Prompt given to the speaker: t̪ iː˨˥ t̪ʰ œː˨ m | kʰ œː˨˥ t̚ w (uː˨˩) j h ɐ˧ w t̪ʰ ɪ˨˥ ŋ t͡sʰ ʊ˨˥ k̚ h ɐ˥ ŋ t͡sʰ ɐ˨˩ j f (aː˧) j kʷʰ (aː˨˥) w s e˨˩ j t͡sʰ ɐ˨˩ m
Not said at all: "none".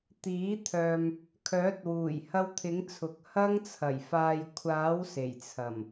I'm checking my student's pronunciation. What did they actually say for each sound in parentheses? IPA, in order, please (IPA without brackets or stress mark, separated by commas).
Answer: uː˨˩, aː˨, aː˨˥